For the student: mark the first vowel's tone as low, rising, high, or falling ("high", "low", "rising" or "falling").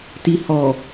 low